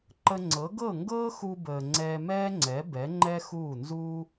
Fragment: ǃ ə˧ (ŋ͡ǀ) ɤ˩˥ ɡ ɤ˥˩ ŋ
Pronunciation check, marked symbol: correct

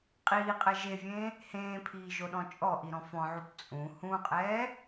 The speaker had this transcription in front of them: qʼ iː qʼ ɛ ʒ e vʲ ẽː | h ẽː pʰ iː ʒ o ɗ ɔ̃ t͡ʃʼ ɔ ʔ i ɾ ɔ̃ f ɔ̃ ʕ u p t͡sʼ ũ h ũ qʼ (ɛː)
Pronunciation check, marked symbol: correct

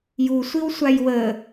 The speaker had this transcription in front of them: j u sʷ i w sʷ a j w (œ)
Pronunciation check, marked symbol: incorrect: ə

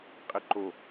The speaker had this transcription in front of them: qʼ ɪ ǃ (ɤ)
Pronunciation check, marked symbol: incorrect: o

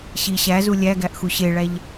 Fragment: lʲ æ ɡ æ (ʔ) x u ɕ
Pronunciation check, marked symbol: correct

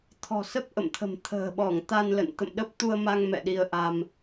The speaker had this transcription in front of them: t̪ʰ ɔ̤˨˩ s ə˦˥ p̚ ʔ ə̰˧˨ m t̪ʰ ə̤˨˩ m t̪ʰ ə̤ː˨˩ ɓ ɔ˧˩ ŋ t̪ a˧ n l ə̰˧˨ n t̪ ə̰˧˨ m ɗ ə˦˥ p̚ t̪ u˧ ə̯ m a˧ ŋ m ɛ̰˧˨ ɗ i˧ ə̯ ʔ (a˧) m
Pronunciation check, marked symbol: correct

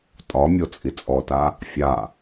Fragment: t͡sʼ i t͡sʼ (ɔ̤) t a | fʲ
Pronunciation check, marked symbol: incorrect: ɔ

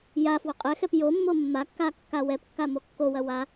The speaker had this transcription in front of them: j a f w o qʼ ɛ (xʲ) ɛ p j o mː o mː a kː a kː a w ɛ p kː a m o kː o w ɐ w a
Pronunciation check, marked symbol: incorrect: x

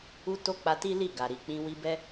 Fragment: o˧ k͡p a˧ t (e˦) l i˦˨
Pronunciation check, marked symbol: incorrect: i˦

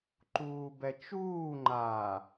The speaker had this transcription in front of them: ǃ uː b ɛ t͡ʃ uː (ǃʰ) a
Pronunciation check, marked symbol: incorrect: ŋ͡ǃ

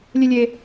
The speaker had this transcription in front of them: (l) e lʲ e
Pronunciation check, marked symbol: incorrect: lʲ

